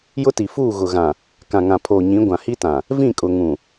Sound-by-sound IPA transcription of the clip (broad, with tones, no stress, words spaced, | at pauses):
jʊ˦ti˨ fuː˦˨ɣʊ˨ɣã˨ | kã˨ŋã˨pʰoː˨ɲĩ˨˦ ɡʷã˨hi˦tã˨ | vĩ˦˨kʼʊ˨ŋũ˨